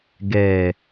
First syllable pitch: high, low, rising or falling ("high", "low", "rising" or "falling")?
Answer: low